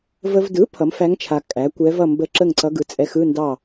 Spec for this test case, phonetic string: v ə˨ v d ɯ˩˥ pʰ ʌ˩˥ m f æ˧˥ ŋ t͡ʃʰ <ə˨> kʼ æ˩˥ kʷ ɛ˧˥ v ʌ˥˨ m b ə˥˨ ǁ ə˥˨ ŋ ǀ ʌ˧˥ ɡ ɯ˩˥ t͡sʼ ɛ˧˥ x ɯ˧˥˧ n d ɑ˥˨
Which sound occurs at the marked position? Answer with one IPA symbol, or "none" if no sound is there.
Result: a˨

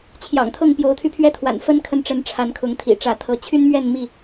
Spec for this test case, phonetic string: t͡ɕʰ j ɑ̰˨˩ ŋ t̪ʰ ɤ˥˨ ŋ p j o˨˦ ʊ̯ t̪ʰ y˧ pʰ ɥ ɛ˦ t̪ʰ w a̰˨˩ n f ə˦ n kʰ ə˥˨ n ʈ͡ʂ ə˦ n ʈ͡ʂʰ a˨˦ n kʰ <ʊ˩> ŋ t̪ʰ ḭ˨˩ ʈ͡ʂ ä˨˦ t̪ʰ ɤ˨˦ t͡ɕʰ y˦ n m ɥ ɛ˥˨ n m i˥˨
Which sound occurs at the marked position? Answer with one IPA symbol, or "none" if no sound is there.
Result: ʊ˨˦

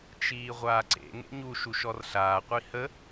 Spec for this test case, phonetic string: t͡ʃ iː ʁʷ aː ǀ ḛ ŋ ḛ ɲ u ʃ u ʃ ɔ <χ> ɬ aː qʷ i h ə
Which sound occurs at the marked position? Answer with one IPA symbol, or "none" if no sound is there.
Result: r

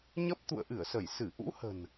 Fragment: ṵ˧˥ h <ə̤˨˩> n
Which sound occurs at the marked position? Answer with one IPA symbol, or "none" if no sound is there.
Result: ə̤˨˩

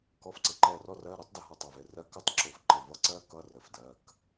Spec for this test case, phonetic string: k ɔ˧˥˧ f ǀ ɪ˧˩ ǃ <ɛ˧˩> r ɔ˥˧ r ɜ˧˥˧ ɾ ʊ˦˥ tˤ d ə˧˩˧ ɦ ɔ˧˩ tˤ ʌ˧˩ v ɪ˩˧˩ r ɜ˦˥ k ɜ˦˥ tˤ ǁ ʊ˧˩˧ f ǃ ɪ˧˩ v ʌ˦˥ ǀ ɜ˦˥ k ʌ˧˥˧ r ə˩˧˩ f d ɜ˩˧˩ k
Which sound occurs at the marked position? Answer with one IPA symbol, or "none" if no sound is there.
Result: ɛ˧˩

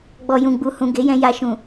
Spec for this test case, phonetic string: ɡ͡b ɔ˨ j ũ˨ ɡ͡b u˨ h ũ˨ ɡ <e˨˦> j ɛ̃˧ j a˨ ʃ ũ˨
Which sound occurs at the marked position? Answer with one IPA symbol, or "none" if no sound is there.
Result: e˨˦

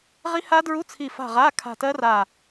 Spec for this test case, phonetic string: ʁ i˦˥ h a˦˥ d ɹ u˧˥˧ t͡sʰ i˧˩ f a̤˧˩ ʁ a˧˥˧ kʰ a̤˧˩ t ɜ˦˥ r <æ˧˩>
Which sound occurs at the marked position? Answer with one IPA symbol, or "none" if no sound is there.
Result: a˧˩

